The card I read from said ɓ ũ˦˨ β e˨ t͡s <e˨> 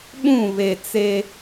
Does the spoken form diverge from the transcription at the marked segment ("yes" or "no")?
yes